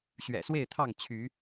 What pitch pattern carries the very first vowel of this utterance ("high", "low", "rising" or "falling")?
low